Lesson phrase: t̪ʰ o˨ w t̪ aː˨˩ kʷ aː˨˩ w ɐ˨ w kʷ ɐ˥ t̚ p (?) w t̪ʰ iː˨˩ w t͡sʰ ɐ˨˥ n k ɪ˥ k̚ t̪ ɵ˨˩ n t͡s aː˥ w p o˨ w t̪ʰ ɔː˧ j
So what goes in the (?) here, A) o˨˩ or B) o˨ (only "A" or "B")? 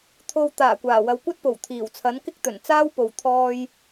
A